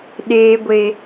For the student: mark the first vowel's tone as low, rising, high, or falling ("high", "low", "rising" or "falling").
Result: low